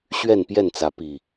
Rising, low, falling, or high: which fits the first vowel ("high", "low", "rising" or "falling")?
falling